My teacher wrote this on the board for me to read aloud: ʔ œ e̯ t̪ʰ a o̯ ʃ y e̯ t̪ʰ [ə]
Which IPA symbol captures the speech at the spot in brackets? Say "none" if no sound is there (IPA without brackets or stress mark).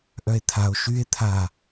a